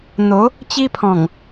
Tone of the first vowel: rising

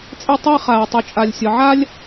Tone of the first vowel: high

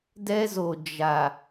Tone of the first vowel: high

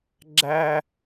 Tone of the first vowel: high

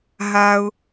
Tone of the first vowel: low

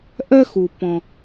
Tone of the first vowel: high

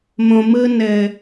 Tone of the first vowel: low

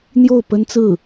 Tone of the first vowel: falling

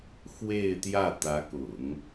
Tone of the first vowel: falling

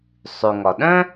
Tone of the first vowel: low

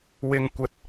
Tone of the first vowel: low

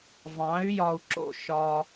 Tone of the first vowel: rising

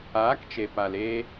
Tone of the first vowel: rising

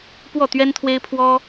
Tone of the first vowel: falling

